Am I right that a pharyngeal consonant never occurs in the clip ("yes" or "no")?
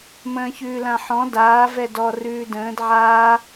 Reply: no